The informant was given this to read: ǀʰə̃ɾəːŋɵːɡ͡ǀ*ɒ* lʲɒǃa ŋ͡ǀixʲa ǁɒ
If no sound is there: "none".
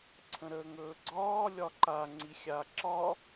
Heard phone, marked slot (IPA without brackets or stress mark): ɒː